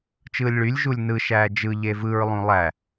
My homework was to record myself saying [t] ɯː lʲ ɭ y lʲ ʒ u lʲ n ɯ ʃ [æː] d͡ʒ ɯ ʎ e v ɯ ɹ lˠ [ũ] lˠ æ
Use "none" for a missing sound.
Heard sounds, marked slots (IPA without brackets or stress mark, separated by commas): t͡ʃ, æː, ũ